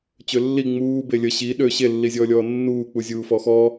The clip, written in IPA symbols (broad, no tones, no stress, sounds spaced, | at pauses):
t͡ɕ ø lː i ŋ͡m uː b e lʲ ə ɕ i ɗ ø ɕ e lː i zʲ ɔː lʲ ɔː nː uː k͡p u zʲ uː f ɔ x ɔ